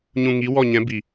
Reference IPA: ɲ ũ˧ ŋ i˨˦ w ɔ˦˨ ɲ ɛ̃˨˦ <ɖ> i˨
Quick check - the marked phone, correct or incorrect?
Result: incorrect